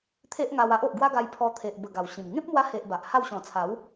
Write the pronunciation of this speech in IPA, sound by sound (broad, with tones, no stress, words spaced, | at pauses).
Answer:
t̪ʰe˦ʔŋa˧wa˦ʔ o˨ʔɡwa˦ɡa˧jpʰɔ˧ t̪ʰe˨ʔbə˨˩ ɡa˨˩wɕĩ˨˩m ŋẽ˦p̚mwa˧he˨ʔ ba˨ʔha˥˧w ɕɔ̃˨˩t͡sʰa˨˦w